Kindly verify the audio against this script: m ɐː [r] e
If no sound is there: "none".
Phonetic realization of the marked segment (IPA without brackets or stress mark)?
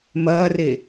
r